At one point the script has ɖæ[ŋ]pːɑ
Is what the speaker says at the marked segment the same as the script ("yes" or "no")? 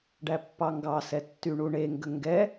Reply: no